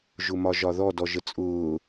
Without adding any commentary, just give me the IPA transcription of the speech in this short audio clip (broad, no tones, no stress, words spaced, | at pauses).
ʒʊmɒʒɒðɔ dɔʒət͡sʼʊː